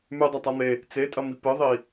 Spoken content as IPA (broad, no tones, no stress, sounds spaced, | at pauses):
m ʉ dˤ ɐ tˤ a n̪ e | t͡s e tʼ ɐ m i p ɨ ðˤ i